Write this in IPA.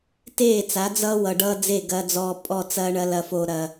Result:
t eː˦˨ t͡s a˨˦ d͡z ʌː˦ w ʌ˨ ɖ ʌː˦ d͡z e˦˨ ɡ ɐː˦ d͡z ɔː˦ pʼ ɔ˦˨ t͡s ɐː˦ ɳ ɐ˦ l ɐ˦ f o˦ ɾ ɐ˦

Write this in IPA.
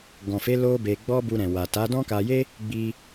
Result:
ɡ ɔ̃˨ f e˨˦ l o˦ b e˧ ɡ͡b ɔ˦ b u˧ ɾ ɛ̃˨ w a˨ t a˨˦ d ɔ̃˦ k a˧ j e˦ | ɡ͡b i˧

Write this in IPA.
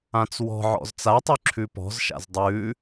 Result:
ã t͡s w ɔ̤ ʕ ɔ̰ z t͡s a tˤ ʉ ǁʰ ʉ p ɔ̤ z ʃ a̰ z dˤ ʉ

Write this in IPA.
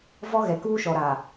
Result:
v ɔ˦ ɣ ɛ˨ k uː˦ ʃ ɔ˨ ɾ aː˨

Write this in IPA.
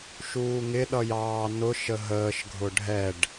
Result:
ʃ uː ŋ ɪ ɗ ʌ j ɑː n ʊ ʃ ə ɦ əː ʃ ɡʱ ʊ ɖʱ ɛ ɖ

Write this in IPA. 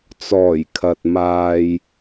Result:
t͡s ɔː˨˩ j kʰ ɐ˨ t̚ m aː˧ j

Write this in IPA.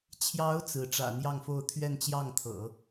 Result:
t͡ɕʰ j ɑ˧˥ ʊ̯ t͡s ɹ̩˧˥ ʈ͡ʂ ä̰˨˩ n̪ j ɑ˥˧ ŋ f o˥˧ ʊ̯ t̪ʰ ɥ ɛ˥˧ n t͡ɕ j ɑ˥˩ ŋ t̪ʰ ɤ̰˨˩˦

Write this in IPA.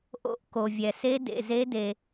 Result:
ʔ o̰˦˥ ʔ k o˨ vʲ ɛ˨ s e˦˥ d ḛ˨ z e˦˥ d e˨

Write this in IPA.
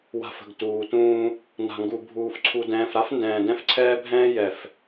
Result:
w a̤˨ f ə̤˨ ɡ t uː˨ t ũː˦ | n a̤˨ ŋ ɡ u˨ bʱ uː˨ f ǀʰ u˨ d ɛ̃ː˨ f ɾ a˦ f n d ɛ̃ː˨ d ɛ̃˦ f ǀʰ ɛː˦ bʱ ɛ̃ː˦ j ɛ˨ f

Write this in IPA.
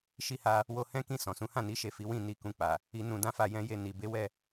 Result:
ʃ i˧ h a˧ | w o˧ h ɛ̃˦ k ĩ˦˨ s ɔ̃˨ s ũ˨˦ h ã˦˨ n i˨˦ ʃ e˦˨ f i˨˦ w ĩ˦˨ n i˧ k ũ˧ k͡p a˨ | i˧ n ũ˧ d ã˦ f a˦˨ j ɛ̃˧ j e˧ n i˨ b e˨˦ w ɛ˦˨

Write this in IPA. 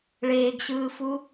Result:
ɭ eː ɡ ɕ ɯː f u

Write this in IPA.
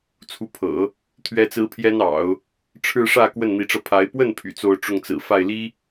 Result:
t͡sʰ u˧˥ pʰ ɤ̰˨˩˦ | t̪ʰ ɥ ɛ˥ t͡s ɹ̩˥ pʰ j ɛ˥ n ɑ̰˨˩˦ ʊ̯ | ʈ͡ʂʰ ɻ̩˥˧ ʂ ä˥˧ k w ə˥˩ n n̪ i˧˥ ʈ͡ʂ ɤ˧ pʰ a˧˥ ɪ̯ p w ə˥˩ n pʰ y̰˨˩ t͡s o˥˧ ʊ̯ ʈ͡ʂ ʊ˥˩ ŋ t͡s ɹ̩˨˩ f a˥˩ ɪ̯ l i˥

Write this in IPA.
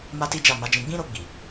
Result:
m a˦ t i˦ d͡ʒ a˦˨ m a˨˦ d͡ʒ ĩ˧ ɡ͡b ĩ˦ ɾ o˧ ɡ͡b i˨

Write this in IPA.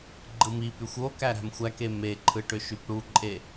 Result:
ɡ͡ǃ ɯ m i p y xʷ o k æ ɾ æ̤ m xʷ æ k e m e ǃʰ ɯ ʈ ø ʃ y p ɽ u ǃʼ e

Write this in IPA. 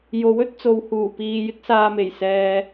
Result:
j o˨˥ w ɵ˥ t̚ t͡s o˨˧ w h uː˨˩ p iː˨ j ɪ˥ k̚ s aː˧ m e˨˩ j s ɛː˨

